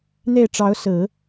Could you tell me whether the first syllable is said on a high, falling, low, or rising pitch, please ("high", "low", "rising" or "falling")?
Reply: falling